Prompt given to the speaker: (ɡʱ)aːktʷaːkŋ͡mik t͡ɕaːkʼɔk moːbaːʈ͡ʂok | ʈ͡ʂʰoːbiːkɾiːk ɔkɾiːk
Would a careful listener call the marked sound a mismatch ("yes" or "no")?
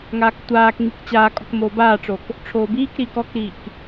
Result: yes